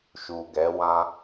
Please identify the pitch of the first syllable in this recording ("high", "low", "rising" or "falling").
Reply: low